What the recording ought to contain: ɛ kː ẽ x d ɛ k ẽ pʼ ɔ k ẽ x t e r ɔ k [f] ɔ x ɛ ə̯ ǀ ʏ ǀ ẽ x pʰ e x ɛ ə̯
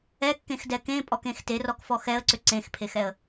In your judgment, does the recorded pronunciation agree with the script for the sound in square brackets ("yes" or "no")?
yes